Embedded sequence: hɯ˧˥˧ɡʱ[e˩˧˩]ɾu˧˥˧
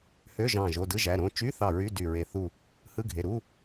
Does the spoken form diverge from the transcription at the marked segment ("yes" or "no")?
no